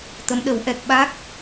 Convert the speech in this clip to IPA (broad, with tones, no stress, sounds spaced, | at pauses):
t̪ ə˧˥ m ɗ ə˨˩˦ w ʔ ɛ˨˩ k̚ ɓ a˦˥ k̚